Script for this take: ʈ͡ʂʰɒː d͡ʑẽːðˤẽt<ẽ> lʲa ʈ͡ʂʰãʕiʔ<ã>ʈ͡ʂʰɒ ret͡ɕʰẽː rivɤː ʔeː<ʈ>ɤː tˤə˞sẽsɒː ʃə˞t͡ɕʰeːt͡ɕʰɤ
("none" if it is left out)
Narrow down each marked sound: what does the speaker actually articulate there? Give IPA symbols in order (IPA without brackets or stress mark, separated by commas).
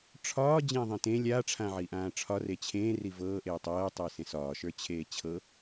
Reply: ẽ, ãː, tˤ